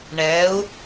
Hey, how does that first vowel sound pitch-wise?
rising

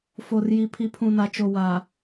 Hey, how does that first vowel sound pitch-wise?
low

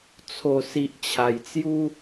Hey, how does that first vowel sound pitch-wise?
low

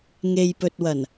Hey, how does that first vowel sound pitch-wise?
low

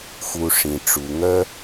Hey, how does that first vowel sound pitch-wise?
low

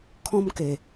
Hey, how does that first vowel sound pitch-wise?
high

